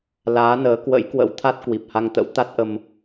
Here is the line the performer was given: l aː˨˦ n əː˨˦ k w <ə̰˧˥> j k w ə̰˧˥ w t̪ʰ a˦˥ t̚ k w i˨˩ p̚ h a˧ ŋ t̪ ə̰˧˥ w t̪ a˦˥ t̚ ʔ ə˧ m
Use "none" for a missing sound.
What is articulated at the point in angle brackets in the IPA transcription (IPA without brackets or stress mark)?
ə̰˧˥